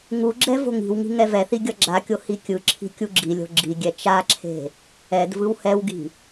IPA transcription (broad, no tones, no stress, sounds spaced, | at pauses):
ŋ u ɡ͡ǁ ɛ v o̤ ŋ i̤ w ŋ i̤ ŋ ɛ v ɛ θ i ɡʲ ʌ ɡ͡ǁ a kʲ o h i kʲ ɯ ǁʰ i̤ kʲ u ɡ͡ǁ i lʲ o̤ ɡ͡ǁ i ɡʲ ɛ t͡ʃ a ǁʰ e̤ | ɛ d v ɯ w h ɛ w ɡ i̤